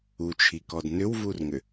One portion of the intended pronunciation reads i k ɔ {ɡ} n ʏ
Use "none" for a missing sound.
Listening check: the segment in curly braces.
d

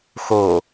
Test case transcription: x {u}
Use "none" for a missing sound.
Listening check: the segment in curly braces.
o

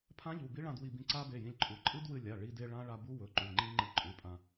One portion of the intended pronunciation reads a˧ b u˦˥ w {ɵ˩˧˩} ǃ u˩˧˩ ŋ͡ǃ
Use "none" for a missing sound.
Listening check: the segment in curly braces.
ɵ˩˧˩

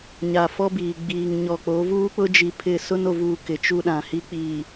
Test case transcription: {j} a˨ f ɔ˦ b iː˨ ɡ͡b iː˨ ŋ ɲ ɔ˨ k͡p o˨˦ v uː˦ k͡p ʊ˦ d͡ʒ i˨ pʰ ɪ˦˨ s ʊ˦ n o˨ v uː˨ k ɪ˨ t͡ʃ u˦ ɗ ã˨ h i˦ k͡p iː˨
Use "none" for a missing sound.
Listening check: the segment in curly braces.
ɲ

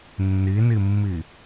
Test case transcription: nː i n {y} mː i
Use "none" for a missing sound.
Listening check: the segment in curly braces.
i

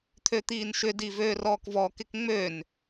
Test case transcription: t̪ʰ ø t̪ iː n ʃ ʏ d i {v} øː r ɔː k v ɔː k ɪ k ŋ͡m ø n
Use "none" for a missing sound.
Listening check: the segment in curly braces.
v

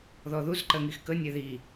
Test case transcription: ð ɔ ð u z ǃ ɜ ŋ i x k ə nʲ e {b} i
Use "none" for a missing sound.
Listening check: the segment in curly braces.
ð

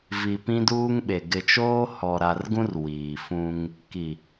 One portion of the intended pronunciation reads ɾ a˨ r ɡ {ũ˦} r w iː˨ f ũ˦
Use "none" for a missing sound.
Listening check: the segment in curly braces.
ũ˦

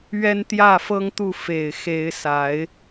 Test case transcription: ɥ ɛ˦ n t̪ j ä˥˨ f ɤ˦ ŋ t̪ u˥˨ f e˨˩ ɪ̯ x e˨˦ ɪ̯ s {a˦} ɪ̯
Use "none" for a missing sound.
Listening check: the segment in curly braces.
a˨˦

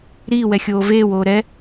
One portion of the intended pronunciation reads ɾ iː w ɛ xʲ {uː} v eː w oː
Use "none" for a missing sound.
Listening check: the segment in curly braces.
oː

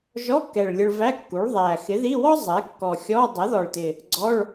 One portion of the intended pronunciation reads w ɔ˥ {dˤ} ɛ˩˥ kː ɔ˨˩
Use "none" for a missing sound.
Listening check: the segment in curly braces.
zˤ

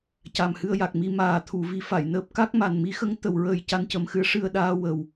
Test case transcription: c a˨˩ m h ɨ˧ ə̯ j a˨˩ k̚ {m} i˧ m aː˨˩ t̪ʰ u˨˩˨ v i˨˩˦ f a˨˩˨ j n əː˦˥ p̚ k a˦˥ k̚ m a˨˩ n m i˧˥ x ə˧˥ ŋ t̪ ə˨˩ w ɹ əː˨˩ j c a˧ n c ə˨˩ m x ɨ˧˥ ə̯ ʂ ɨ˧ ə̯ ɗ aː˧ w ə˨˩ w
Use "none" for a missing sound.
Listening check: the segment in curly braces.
m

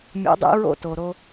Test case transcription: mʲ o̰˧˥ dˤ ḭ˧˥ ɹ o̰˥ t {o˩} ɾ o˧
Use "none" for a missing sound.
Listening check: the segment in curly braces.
o˩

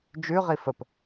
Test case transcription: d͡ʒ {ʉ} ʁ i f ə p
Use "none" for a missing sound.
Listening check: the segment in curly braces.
ʉ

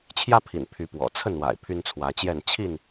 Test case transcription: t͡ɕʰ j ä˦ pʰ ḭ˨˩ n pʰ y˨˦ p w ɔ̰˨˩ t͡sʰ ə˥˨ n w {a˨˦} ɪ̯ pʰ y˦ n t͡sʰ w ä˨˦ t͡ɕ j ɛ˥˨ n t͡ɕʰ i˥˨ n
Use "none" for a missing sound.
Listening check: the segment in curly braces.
a̰˨˩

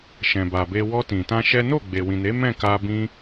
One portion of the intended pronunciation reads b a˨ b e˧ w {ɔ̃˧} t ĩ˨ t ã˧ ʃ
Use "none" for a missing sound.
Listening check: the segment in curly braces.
ɔ˧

